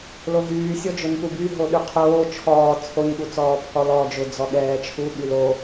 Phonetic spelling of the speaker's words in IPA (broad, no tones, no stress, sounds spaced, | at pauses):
l o ɦ yː sʲ ɔ d͡ʒ ʊ n p u b y ɦ o ɗ y qʰ oː t͡ʃʰ ɔː t͡sʰ o ɲ ɠ u t͡s ɔː pʰ ɔ l ɔː d͡ʒ ʊ d͡z ɔ ɠ ɛː t͡ʃʰ u ɠ y l o